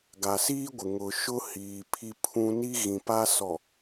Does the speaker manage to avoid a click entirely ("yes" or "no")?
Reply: yes